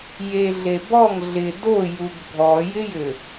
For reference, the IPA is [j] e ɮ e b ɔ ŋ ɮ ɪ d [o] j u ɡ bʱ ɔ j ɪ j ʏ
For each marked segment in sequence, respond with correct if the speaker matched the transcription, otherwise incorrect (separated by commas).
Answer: correct, correct